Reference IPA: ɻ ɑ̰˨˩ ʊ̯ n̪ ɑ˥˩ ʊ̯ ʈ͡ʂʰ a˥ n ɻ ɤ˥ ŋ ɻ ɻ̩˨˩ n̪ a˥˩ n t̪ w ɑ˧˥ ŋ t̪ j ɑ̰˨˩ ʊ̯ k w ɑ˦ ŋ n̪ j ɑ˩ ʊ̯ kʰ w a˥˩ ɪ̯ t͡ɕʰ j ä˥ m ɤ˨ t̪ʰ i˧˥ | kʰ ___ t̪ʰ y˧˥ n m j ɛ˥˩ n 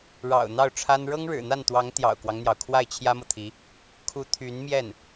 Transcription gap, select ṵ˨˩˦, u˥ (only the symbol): u˥